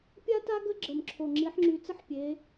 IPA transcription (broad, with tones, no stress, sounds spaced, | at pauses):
pʲ a˥ t a˥ ɡ ə˥ ɡ͡ǁ ə˨˩ m ǁʰ o˨˩ ŋ͡ǁ i˨˦ ħ ŋ͡ǁ y˨˦ t͡s ə˥ ħ pʲ e˨˦